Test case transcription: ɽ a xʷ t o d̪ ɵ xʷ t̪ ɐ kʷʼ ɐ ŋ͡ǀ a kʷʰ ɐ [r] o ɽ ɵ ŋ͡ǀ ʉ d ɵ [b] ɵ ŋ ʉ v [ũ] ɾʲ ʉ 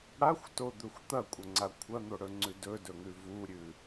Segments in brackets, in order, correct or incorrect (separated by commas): incorrect, incorrect, incorrect